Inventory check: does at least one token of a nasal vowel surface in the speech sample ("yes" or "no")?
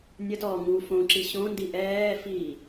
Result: yes